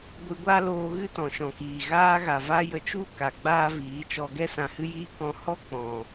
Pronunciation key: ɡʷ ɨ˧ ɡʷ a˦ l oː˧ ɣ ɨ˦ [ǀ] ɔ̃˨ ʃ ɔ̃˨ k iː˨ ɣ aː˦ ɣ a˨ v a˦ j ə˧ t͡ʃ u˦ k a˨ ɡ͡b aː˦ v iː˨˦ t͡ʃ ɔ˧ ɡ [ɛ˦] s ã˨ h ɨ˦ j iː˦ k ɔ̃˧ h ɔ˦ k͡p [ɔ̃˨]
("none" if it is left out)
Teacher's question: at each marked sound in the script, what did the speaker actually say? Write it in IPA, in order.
t, ɛ˦, ɔ̃˨

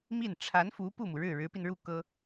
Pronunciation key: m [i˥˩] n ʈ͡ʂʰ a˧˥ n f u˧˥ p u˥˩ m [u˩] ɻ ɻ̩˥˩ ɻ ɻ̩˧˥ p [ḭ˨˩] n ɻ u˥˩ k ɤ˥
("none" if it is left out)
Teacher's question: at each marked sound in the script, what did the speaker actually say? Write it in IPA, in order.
i˥˩, u˩, i˧

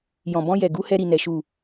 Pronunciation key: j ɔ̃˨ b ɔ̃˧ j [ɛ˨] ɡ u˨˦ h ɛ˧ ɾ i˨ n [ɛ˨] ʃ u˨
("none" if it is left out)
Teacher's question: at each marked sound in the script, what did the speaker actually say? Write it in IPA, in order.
ɛ˨, ɛ˨

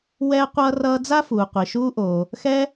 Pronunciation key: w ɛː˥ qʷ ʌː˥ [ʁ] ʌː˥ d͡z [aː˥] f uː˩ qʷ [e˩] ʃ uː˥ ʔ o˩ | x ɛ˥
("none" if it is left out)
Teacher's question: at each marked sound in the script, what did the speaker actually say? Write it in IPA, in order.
r, a˥, i˩

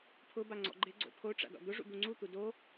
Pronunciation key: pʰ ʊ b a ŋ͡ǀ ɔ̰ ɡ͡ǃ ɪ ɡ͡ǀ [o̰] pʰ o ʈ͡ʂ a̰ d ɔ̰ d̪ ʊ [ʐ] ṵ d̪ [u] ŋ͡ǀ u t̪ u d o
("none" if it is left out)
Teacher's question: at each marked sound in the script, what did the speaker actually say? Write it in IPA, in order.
o̰, ʐ, u

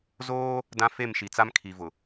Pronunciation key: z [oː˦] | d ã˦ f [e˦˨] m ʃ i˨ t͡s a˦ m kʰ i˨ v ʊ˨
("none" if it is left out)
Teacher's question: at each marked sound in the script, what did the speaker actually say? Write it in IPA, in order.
oː˦, e˦˨

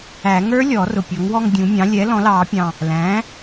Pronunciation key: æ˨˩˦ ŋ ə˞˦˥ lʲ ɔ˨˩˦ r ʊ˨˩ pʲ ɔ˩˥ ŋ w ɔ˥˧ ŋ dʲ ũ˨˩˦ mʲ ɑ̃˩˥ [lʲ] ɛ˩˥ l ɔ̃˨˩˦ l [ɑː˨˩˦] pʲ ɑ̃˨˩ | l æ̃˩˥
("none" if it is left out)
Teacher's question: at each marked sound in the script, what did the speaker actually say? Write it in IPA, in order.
lʲ, ɑː˨˩˦

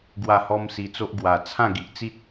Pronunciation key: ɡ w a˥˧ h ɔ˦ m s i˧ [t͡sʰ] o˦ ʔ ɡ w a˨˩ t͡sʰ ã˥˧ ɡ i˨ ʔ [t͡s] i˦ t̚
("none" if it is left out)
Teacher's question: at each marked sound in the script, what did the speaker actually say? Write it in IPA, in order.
t͡s, t͡s

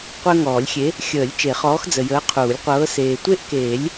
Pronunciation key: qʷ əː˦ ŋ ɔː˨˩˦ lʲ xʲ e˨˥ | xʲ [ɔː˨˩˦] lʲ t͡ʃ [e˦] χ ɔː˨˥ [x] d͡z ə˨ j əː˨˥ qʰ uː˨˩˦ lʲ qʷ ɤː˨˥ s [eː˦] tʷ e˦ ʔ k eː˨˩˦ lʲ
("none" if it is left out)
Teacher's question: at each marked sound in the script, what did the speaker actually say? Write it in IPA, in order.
əː˨˩˦, e˨˩˦, x, eː˨

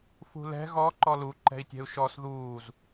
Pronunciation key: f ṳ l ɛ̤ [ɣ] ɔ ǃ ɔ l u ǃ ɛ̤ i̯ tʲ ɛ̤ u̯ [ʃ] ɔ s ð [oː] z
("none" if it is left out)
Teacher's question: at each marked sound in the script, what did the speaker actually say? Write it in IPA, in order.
ɣ, ʃ, uː

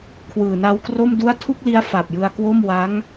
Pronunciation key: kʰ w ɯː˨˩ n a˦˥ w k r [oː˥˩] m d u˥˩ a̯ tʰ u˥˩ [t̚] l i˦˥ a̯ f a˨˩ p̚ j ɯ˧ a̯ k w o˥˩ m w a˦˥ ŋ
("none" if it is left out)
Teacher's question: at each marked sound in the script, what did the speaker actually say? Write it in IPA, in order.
o˥˩, k̚

